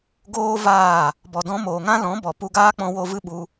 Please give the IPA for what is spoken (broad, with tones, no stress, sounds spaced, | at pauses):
ɡ oː˦ v aː˦˨ | b ɔ˨ d ɔ̃˧ m oː˨ ŋ ã˦ l ɔ̃˨˦ b ɔ˨ p u˧ ɡ aː˦ k͡p ɔ̃˧ w o˧ v ɨ˦ ɓ u˧